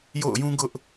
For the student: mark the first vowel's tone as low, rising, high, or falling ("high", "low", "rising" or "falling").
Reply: falling